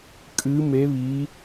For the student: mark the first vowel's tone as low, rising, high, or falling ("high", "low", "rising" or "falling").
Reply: rising